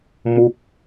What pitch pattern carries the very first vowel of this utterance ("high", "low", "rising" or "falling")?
falling